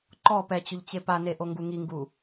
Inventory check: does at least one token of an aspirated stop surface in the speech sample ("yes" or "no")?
no